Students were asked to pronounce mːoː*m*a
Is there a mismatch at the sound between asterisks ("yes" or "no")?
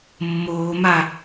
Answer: no